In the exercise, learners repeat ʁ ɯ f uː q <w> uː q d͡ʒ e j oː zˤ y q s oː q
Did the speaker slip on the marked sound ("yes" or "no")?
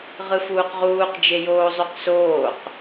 yes